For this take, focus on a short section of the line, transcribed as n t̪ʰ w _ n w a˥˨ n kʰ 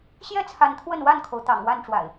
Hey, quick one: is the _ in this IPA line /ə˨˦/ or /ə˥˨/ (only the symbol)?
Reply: ə˥˨